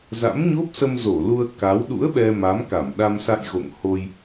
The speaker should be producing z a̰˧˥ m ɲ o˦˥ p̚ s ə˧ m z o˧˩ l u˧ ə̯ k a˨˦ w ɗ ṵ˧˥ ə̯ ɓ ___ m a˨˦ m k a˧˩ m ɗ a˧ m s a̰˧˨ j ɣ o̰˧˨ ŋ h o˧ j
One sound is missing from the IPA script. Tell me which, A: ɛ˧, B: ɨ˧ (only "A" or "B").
A